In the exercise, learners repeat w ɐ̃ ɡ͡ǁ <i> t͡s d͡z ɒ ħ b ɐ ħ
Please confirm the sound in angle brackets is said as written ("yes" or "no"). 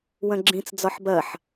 no